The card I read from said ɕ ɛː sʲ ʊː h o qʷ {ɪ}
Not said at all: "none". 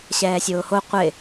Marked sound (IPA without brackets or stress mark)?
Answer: ɪ